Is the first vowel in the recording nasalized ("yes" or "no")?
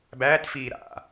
no